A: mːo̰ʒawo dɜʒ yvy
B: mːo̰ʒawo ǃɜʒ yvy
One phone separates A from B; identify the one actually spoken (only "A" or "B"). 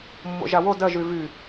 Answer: A